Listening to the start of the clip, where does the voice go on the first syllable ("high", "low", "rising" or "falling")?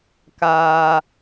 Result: high